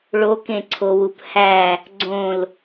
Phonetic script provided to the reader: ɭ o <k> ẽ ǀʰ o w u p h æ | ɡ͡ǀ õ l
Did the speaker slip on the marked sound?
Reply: no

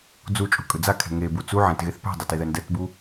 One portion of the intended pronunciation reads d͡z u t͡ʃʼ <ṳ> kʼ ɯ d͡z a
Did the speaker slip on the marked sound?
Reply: no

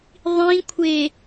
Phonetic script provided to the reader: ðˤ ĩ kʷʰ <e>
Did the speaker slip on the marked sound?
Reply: no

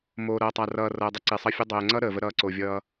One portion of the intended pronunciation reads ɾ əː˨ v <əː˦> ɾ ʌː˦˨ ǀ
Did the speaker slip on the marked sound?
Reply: yes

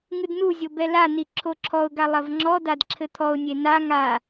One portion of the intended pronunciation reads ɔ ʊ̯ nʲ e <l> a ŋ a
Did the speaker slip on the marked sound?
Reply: yes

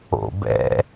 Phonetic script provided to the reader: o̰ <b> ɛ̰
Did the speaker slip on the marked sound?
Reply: no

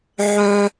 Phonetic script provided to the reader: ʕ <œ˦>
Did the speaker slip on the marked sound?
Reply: no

